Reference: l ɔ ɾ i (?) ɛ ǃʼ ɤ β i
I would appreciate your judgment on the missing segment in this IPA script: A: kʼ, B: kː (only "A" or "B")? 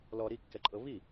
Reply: B